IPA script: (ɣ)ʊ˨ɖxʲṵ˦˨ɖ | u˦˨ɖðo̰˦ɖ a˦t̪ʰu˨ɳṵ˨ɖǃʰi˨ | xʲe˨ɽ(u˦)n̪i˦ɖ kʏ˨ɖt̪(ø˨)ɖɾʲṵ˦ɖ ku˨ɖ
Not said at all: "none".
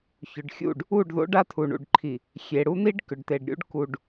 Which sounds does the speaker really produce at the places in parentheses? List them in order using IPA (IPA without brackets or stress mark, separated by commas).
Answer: ç, u˦, e˨